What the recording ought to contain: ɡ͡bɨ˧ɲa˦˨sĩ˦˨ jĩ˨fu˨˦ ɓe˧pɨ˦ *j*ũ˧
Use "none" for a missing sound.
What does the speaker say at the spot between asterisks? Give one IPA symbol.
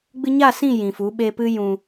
j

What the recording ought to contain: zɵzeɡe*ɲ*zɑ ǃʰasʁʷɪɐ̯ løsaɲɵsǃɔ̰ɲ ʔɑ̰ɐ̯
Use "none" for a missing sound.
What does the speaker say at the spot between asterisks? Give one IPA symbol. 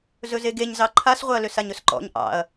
ɲ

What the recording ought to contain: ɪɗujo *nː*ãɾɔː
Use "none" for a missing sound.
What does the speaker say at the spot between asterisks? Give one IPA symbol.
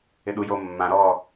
mː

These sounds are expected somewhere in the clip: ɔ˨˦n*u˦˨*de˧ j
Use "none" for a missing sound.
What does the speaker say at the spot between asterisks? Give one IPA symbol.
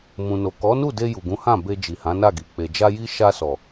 u˦˨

